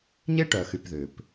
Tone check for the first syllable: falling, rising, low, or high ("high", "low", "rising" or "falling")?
high